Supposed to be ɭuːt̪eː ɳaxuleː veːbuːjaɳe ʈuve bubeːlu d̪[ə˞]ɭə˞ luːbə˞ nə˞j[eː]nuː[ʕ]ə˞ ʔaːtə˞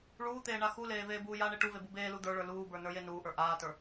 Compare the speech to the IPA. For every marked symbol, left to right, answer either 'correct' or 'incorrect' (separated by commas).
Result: correct, incorrect, incorrect